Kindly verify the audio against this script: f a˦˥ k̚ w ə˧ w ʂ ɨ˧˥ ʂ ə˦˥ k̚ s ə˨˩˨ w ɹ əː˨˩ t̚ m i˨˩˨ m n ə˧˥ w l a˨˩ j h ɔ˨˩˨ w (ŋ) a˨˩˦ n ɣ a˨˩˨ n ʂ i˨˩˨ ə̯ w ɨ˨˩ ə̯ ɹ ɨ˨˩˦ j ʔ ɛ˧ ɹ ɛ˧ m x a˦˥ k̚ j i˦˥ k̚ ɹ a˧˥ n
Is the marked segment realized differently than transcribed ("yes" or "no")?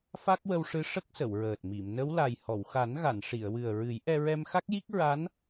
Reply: yes